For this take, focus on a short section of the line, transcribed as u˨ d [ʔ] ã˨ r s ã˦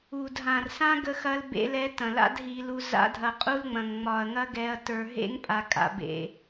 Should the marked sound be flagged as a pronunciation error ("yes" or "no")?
yes